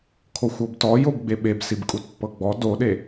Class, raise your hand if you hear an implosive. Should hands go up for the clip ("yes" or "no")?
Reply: yes